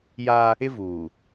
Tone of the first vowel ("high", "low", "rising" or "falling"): high